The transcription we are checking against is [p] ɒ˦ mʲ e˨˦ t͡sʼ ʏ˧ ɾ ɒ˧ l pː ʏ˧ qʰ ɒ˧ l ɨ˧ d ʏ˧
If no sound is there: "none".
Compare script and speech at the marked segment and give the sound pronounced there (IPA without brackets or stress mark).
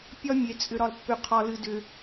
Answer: pʲ